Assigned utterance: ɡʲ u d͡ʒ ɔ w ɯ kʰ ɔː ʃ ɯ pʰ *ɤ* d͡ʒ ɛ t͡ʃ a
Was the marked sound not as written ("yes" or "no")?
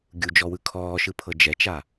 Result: no